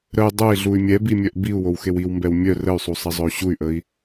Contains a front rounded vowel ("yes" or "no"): yes